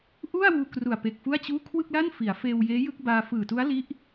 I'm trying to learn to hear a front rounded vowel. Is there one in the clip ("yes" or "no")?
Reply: no